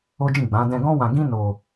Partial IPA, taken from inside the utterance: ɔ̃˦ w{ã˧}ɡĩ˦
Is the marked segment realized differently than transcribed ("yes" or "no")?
no